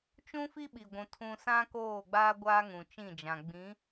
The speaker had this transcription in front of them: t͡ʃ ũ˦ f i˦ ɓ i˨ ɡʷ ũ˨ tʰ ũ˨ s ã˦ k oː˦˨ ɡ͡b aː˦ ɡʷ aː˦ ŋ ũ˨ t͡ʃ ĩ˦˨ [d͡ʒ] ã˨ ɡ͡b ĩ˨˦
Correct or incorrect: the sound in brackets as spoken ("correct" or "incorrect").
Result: correct